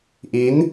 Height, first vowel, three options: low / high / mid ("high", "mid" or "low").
high